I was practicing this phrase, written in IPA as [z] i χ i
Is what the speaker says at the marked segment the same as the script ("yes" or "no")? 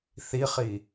no